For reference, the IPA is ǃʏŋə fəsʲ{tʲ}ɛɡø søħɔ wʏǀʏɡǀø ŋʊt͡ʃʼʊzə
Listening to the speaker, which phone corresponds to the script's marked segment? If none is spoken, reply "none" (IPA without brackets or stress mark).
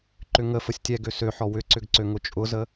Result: tʲ